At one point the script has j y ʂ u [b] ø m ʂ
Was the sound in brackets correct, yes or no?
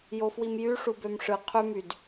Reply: yes